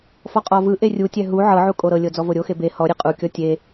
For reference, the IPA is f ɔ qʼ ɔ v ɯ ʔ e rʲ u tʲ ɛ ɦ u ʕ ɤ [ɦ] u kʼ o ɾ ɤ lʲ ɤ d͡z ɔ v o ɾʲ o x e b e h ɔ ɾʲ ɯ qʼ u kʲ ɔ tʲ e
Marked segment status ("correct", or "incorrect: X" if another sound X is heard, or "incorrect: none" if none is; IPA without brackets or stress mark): incorrect: ʕ